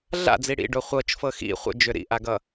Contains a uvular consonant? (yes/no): yes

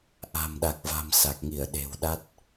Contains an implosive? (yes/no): yes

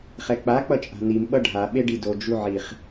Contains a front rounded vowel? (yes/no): no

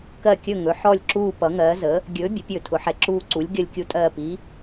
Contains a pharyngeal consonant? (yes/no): yes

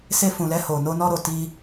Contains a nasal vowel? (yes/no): yes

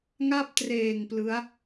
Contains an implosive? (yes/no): no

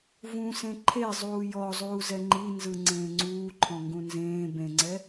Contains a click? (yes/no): yes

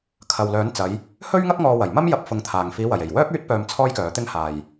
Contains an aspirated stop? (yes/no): yes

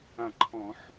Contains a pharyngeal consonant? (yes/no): yes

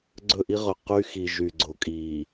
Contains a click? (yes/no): yes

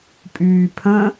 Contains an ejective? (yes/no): yes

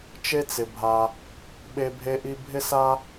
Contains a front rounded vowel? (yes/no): no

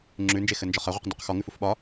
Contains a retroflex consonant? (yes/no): no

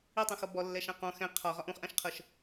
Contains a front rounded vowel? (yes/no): no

